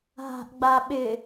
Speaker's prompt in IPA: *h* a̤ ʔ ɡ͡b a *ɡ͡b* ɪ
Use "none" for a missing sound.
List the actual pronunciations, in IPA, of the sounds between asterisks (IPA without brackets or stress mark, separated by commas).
ɦ, ɓ